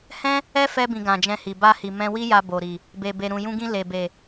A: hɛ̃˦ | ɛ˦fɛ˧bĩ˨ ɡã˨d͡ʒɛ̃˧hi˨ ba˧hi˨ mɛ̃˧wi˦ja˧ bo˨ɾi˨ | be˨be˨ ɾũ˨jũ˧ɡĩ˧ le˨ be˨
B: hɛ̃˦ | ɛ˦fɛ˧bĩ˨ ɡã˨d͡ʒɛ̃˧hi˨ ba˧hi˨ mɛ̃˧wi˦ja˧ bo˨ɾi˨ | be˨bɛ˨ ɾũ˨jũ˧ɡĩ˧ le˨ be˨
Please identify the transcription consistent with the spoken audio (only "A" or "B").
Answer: A